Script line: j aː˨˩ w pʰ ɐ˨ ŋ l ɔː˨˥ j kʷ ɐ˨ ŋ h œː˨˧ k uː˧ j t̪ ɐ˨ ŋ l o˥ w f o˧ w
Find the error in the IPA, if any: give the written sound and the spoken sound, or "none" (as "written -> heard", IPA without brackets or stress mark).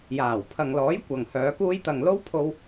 f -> pʰ